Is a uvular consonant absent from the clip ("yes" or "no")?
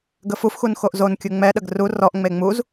yes